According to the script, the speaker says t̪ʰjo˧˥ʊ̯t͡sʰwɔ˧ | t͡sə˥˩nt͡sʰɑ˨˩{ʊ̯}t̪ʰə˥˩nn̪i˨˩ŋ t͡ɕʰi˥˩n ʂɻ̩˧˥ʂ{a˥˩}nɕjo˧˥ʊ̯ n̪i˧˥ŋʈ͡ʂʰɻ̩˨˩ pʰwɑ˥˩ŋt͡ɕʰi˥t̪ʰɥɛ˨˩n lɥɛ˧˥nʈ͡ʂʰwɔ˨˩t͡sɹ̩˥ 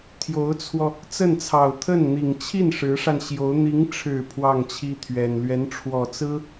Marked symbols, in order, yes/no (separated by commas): yes, no